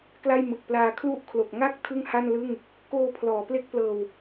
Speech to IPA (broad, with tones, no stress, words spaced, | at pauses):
kla˥˩jmɯ˨˩k̚ plaː˧kʰlu˥˩ʔ kʰlo˨˩k̚ ŋa˥˩k̚ tʰɯ˥˩ŋha˥˩nlɯ˥˩ŋ | koː˧pʰlɔː˩˦ ple˥˩k̚plɤː˧w